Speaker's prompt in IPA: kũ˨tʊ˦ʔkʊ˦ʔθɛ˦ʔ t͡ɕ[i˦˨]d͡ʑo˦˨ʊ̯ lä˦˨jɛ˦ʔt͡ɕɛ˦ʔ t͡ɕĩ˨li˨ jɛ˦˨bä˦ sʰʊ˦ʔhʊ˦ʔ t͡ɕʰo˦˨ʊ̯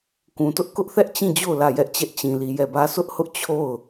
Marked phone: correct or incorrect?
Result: incorrect